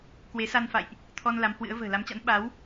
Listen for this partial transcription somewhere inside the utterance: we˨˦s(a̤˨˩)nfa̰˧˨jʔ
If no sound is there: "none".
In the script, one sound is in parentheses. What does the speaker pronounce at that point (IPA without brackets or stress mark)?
a˧